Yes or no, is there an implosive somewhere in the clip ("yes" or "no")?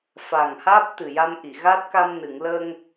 no